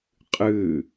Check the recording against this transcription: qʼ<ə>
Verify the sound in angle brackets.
incorrect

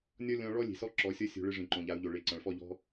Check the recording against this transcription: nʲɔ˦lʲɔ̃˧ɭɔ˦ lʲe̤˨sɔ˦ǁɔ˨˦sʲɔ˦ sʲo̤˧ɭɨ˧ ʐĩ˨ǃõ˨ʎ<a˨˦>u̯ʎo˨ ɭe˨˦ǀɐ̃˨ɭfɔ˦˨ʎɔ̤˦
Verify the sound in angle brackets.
correct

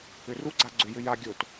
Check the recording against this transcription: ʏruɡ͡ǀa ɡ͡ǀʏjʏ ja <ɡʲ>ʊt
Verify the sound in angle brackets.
correct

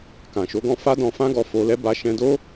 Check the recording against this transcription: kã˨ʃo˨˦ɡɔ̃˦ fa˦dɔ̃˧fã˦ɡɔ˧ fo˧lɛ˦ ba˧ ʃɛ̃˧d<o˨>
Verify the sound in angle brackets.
incorrect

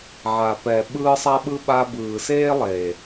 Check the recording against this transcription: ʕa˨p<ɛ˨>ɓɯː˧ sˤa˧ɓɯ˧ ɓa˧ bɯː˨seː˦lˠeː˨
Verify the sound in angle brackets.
correct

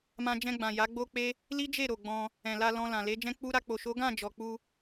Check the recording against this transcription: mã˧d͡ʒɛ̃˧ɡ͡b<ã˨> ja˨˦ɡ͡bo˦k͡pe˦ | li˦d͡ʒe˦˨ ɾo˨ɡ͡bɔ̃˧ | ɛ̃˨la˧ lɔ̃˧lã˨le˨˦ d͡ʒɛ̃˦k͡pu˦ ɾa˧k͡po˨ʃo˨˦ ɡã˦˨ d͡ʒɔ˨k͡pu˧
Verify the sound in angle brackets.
correct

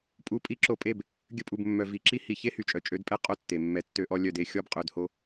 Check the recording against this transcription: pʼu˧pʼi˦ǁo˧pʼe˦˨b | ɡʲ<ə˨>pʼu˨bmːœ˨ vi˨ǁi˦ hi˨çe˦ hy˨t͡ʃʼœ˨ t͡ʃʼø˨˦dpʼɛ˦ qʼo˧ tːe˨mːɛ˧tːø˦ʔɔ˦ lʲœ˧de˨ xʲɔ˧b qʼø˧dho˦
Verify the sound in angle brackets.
incorrect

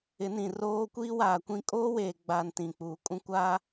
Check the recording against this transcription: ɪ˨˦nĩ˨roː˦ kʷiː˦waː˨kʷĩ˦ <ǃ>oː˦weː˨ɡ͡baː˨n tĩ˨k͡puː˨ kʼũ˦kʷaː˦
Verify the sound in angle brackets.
incorrect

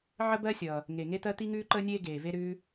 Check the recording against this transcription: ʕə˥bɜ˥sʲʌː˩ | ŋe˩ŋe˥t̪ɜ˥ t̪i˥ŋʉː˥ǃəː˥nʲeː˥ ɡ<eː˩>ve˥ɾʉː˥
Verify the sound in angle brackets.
correct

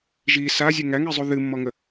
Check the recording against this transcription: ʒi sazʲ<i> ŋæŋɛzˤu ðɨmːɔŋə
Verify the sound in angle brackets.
incorrect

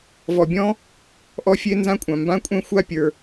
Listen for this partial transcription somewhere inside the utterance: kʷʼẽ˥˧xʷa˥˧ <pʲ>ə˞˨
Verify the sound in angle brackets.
correct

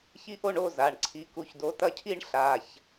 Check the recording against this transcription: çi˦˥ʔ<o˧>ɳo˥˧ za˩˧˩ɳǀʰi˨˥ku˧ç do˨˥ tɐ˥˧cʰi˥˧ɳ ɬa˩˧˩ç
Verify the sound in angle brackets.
incorrect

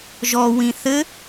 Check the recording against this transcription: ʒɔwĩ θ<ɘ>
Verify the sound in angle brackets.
correct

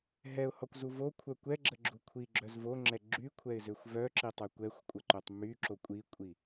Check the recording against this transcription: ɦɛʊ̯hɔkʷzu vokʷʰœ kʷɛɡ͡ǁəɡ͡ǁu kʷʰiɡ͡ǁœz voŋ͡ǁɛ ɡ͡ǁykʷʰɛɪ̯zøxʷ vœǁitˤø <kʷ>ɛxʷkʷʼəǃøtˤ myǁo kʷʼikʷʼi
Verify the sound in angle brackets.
correct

